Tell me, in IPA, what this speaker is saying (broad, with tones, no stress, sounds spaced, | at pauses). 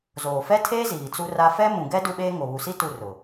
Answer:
z oː˨ f ɛ˦ tʰ eː˦ z iː˨ t͡s u˦ r a˦ f ɛ˦ m ũ˨ ɡ ɛ˦ d u˦ ɓ eː˦ ŋ o˨ β u˨ s i˦ t u˦˨ r ʊ˨